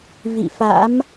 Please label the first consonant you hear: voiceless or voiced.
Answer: voiced